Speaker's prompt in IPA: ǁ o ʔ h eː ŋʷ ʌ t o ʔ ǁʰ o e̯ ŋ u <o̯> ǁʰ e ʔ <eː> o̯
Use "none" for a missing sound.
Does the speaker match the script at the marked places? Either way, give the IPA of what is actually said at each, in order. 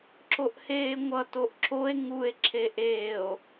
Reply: e̯, eː

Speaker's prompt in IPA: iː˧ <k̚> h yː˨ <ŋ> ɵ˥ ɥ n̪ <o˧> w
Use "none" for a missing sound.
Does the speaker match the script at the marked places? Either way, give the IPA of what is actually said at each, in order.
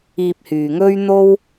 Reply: p̚, ŋ, o˥

